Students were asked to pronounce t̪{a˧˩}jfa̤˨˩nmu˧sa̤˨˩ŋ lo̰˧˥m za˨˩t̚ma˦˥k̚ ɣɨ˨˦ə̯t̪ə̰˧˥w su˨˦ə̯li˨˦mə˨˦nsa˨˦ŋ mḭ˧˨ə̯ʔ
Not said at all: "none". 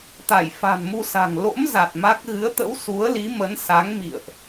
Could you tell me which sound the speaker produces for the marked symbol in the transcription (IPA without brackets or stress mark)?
a˧˩